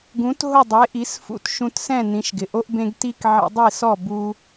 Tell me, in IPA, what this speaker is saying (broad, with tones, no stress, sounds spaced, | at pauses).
ɡ ũ˩˥ t ɦ ʊ˥˩ dˤ e˩˥ ʔ i˩˥ s f ṵ˧ t ʃ ũ˧ t s ɛ̃˥˩ n ĩ˩˥ ʃ ɡ ɪ˩ ʔ o˥ ʔ b ẽ˥ ɡ t i˥ k ʕ ḭ˧ dˤ i˥˩ s ɔ˥˩ b u˧